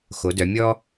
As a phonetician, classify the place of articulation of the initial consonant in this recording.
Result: velar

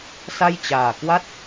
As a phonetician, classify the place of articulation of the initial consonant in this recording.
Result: alveolar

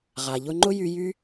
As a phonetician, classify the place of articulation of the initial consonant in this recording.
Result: uvular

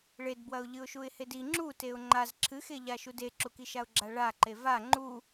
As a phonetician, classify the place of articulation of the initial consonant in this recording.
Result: retroflex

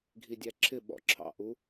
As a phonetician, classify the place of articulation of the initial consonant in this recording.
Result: velar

